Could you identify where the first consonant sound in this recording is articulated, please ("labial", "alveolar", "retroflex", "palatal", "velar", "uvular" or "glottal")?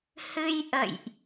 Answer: glottal